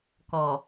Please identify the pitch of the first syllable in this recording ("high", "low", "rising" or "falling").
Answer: low